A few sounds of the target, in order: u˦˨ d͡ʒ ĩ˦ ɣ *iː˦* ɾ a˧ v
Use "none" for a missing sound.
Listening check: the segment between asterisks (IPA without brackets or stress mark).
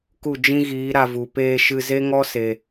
iː˨˦